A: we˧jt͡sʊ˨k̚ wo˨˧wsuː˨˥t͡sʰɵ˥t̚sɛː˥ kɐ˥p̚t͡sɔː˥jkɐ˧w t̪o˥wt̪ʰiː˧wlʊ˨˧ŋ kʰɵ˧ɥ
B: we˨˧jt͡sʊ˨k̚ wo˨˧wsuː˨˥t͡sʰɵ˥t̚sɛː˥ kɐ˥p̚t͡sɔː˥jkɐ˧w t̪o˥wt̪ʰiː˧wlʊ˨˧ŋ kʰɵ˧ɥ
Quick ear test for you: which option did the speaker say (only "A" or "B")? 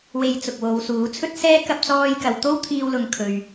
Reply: A